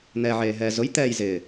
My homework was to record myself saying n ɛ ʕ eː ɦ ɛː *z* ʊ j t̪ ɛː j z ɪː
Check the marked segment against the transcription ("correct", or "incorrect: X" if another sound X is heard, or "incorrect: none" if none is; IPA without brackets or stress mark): correct